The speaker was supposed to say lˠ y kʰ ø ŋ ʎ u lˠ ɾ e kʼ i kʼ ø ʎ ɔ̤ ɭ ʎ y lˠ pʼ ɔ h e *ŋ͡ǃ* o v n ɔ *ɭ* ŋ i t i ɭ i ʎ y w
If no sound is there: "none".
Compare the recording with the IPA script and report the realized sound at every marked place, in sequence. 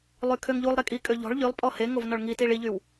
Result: ŋ, ɭ

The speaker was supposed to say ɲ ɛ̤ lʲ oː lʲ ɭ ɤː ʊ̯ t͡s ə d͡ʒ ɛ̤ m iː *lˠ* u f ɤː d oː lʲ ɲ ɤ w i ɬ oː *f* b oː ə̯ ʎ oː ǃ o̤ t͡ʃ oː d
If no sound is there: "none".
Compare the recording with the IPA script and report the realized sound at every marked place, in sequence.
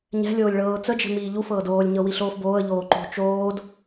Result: ʎ, f

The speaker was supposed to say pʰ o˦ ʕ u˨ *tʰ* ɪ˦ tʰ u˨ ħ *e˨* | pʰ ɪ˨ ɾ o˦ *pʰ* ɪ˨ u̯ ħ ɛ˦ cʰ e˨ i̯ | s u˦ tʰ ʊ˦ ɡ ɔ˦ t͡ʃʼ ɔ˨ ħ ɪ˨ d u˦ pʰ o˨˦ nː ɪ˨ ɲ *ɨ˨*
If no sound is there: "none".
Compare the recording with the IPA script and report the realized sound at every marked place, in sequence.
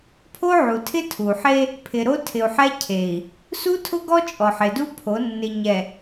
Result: tʰ, e˦, tʰ, ɛ˨

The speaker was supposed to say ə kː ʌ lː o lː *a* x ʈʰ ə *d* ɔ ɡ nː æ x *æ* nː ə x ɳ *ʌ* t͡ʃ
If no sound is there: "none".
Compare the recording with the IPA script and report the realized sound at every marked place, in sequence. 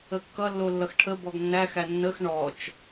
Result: ʌ, b, æ, ɔ

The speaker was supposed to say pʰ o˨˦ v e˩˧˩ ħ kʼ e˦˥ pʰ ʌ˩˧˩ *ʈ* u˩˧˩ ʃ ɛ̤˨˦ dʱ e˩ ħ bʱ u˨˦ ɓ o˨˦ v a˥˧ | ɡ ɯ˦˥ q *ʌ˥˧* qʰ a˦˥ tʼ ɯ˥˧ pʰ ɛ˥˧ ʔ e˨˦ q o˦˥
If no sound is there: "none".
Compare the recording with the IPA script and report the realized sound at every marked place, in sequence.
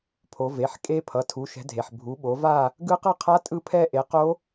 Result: tʰ, ʌ˥˧

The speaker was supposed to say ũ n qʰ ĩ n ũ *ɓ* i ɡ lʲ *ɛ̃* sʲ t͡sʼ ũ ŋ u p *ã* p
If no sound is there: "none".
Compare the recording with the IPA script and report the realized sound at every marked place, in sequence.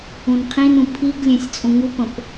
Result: pʰ, ɛ̃, ə̃

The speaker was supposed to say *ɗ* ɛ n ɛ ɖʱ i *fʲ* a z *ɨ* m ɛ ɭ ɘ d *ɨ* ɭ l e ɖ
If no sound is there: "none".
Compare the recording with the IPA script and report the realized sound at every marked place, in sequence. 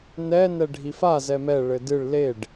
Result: n, f, ɛ, ɨ

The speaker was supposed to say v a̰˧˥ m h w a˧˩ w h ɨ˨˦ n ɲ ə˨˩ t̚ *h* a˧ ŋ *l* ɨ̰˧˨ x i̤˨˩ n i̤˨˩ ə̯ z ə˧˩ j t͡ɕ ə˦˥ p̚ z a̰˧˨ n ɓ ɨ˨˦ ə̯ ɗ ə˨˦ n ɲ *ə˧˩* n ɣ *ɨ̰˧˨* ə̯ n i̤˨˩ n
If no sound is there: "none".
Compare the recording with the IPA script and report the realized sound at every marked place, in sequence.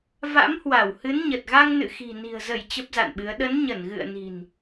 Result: ɣ, n, ə˧˩, ɨ̰˧˨

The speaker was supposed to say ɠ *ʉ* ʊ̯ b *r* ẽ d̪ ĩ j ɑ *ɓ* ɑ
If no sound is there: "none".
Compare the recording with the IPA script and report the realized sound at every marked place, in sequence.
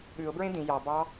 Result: ʉ, ɹ, b

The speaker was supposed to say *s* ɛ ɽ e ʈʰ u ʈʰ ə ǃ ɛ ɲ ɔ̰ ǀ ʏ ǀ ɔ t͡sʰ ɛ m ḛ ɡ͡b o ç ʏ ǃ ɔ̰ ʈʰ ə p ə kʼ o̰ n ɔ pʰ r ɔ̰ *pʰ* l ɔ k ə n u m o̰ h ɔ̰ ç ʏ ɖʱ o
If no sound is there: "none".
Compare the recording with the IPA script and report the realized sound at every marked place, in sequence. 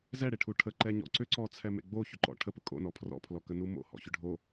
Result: z, pʰ

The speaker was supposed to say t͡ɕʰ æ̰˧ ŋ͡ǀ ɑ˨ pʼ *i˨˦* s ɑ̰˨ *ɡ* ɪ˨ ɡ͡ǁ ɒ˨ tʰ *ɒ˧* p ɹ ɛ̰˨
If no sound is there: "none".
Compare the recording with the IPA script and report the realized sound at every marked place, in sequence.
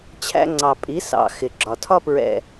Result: i˨˦, x, ɒ˧

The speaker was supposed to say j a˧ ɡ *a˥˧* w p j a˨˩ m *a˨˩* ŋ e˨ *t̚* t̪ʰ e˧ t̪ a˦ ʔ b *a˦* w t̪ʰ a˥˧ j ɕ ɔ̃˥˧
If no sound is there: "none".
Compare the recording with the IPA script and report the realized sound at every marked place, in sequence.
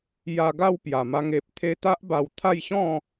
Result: a˥˧, a˧, p̚, a˧

